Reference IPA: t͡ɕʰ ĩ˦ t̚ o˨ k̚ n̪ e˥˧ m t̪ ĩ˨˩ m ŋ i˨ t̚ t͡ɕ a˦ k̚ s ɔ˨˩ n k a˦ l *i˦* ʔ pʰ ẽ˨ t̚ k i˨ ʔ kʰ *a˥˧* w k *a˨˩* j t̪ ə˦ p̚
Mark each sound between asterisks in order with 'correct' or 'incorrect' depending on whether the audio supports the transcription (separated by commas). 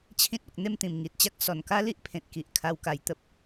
correct, incorrect, incorrect